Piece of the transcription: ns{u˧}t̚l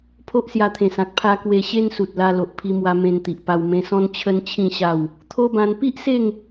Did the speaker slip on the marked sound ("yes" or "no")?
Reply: yes